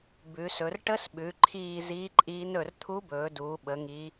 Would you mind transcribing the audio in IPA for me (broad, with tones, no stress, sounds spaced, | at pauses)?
b ʉ˩˧ s ɵ˩˧ r ʈ ə˧˥ s ɓ ʉ˩˧ ǃʰ iː˦˨ z iː˧˥ ǃʼ iː˧˥ n ɵ˦˨ r t̪ʰ u˧˥ b ɵː˩˧ d uː˩˧ ɓ ə˩˧ ŋ i˧˥